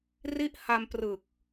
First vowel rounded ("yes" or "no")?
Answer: no